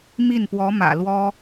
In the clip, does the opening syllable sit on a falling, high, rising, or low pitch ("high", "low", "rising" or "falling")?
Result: falling